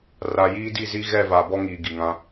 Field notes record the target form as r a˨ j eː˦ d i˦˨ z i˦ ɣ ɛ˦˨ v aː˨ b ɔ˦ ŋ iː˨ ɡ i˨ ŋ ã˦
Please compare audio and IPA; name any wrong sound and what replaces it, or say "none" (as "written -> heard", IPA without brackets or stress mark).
eː˦ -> iː˦